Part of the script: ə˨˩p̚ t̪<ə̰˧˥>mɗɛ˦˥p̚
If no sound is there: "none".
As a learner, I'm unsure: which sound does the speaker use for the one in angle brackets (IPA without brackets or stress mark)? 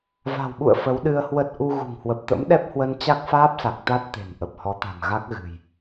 ə̰˧˥